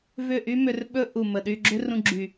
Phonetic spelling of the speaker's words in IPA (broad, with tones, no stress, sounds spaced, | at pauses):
v ʏ˦˨ ʔ y˦ m ʏ˧ r ɓ ɵ˦ ʔ u˨ m ə˨ ɗ y˧ ɡ͡ǁ ʏ˦ r ũ˧ ɡ͡ǁ y˨